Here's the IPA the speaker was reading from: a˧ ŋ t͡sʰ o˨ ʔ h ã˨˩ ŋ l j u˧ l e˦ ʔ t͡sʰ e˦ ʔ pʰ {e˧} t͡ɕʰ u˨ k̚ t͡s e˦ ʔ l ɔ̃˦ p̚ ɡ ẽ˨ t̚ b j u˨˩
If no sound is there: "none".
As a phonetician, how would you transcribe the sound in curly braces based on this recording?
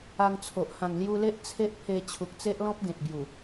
e˧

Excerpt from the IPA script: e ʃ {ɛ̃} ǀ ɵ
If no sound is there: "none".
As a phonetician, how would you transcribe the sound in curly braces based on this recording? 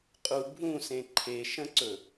ə̃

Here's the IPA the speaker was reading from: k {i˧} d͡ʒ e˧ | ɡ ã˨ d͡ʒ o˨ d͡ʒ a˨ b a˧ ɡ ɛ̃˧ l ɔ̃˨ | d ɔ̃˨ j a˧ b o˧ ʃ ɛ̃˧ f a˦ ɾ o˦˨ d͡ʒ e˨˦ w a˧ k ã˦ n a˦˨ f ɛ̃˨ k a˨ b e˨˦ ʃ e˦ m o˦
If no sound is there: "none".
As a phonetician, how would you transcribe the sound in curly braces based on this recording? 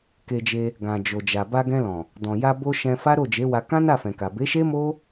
e˧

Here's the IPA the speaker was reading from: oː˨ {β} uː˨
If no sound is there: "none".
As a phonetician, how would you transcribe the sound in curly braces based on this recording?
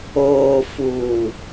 f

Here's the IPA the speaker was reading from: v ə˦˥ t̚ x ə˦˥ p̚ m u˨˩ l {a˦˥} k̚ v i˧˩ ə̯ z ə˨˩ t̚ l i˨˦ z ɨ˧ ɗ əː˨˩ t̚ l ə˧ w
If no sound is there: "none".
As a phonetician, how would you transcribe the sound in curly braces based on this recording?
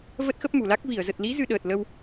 a˦˥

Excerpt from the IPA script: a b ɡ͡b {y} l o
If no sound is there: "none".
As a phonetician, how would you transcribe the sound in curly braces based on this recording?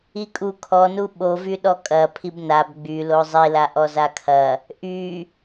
y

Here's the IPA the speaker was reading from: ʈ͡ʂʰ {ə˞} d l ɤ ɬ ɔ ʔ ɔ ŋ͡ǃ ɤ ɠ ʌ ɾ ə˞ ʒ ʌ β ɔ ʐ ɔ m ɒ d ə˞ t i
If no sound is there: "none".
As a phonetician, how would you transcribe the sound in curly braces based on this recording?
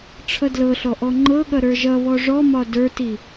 ʌ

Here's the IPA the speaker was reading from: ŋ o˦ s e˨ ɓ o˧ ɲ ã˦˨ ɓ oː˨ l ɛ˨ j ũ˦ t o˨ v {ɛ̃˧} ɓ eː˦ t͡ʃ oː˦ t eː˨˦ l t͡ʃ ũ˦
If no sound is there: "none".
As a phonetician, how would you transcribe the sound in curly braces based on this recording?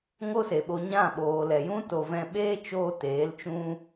ɛ̃˧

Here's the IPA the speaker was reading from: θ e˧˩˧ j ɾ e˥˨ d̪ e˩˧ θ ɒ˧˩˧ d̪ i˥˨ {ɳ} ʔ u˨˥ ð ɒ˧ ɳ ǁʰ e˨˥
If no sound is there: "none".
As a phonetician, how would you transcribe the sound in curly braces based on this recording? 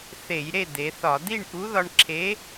ɳ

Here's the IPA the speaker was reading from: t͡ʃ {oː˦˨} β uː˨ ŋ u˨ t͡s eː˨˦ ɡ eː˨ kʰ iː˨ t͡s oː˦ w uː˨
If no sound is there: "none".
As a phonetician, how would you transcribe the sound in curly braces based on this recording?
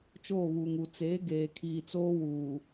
oː˦˨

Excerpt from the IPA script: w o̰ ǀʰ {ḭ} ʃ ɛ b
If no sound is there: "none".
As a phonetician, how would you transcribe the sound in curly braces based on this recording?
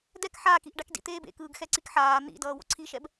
i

